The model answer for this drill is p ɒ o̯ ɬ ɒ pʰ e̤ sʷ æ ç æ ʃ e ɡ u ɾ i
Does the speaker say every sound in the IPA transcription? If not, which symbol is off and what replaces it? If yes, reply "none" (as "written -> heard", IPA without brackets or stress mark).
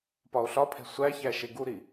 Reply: none